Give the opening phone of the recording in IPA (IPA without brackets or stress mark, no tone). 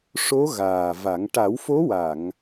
ʂ